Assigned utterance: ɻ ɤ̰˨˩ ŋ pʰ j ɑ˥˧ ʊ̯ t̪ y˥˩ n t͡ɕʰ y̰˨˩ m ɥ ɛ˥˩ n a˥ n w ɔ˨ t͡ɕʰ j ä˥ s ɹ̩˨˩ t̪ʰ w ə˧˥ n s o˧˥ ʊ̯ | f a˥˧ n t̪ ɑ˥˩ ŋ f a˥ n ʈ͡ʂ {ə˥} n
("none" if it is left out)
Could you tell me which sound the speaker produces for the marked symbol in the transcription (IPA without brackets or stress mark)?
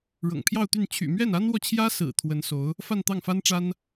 a˥